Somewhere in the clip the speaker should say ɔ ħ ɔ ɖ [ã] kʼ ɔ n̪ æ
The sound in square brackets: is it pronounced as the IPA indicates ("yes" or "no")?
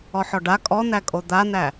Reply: no